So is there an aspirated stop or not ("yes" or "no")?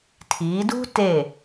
yes